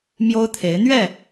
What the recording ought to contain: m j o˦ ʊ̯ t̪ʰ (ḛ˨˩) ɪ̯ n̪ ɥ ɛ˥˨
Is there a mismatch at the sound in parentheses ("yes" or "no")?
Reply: yes